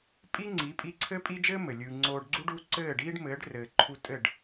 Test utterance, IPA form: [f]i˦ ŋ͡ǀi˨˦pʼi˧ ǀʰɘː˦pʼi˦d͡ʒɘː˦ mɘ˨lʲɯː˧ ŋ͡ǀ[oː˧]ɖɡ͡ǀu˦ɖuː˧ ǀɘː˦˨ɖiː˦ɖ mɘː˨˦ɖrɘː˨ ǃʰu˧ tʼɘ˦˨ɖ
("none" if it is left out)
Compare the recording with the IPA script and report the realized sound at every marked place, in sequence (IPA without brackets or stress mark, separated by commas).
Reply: pʼ, oː˧